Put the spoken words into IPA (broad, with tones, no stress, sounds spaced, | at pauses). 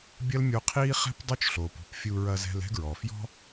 bʲ ɐ˦ l mʲ o˧ qʰ iː˦ χ ɛ̤˦ p dˤ o˦ t͡ʃ ɬ oː˨ p ṳ˦˨ p fʲ u˧ ɹ ɐ˧ z ɛ̤˧ l ɛ̤˦ ɡ ɹ ɔ˨ f j ɔ̤˦